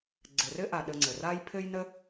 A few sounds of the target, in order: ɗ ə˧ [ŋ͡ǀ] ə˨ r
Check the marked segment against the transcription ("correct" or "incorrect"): correct